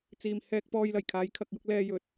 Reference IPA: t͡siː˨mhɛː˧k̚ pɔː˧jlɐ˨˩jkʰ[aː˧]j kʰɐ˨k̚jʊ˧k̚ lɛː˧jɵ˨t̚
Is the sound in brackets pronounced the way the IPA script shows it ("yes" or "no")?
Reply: no